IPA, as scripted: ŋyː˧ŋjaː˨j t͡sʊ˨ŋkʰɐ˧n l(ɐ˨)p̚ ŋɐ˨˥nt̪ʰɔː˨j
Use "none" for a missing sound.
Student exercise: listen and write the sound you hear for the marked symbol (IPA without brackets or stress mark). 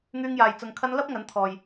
ɐ˥